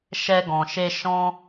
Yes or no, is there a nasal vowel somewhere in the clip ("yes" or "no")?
yes